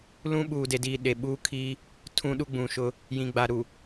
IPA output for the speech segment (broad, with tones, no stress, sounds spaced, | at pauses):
l ũ˦ ɓ uː˨ d e˨ d iː˨ ɗ e˨ ɓ uː˦ kʰ iː˦ | tʰ ũ˦ ɗ u˦ ɡ͡b ũ˨ ʃ ʊ˦ | j ĩ˨ ɡ͡b a˨ ɾ u˨